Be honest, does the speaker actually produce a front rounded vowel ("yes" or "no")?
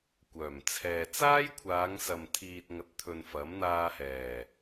yes